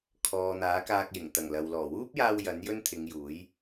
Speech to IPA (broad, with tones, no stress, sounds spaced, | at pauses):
kʰ ɔː˨ n̪ aː˨˥ k aː˧ k̚ j ɪ˨˩ ŋ t̪ ɐ˨˩ ŋ l ɐ˨ w l ɔː˨˩ w uː˥ p̚ j aː˧ w j ɐ˨˥ n j ɵ˥ n t̪ʰ ɪ˨˧ ŋ j uː˨˥ j